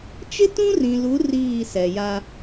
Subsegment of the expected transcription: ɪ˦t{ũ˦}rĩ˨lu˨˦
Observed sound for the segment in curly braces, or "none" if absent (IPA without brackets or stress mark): ũ˦